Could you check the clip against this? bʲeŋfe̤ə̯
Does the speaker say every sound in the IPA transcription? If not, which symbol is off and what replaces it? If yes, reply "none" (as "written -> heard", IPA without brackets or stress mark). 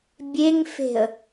none